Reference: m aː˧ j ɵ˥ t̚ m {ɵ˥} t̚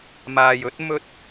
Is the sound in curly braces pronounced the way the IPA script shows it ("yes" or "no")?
yes